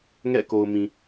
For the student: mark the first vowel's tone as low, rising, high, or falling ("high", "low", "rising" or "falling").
falling